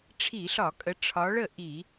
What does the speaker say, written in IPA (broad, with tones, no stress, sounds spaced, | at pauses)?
ʈ͡ʂʰ i˧˩˧ ɬ ɒ˧˩˧ kʼ ə˨˦ ʈ͡ʂʰ ɒ˨˦ ɭ ə˥˩ ʔ i˧˩˧